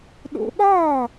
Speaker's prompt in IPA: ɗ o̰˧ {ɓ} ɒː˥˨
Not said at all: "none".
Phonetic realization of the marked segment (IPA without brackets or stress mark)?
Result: ɓ